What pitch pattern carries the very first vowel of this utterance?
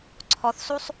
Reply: rising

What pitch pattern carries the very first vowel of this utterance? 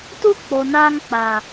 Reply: high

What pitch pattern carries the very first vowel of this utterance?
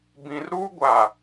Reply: low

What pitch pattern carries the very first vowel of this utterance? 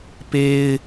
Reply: high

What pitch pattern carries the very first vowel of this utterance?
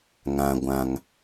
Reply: low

